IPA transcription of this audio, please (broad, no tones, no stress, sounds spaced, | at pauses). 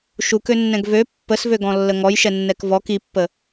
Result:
ʃ u k ø nː ɛ̃ ɡ v ø pː ə s v ø ɡ ɔ̃ lː ə ŋ ɔ j ʃ ɛ nː ɛ k v ɔ k i pː ə